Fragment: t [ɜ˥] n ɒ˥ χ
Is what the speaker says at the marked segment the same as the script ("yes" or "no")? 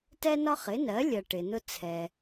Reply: no